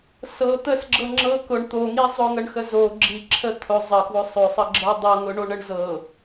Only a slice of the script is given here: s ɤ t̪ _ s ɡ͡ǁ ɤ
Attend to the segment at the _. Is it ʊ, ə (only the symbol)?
ə